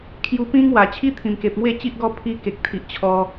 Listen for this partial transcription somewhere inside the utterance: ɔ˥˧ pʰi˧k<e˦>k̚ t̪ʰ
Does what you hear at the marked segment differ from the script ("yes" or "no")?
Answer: yes